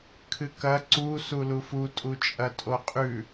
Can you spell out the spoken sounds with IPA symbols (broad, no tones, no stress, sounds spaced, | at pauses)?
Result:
kʰ ɨ k ɐ ǀ u s u l u f u tʼ u t͡ʃʼ ɐ tʼ o qʼ ʉ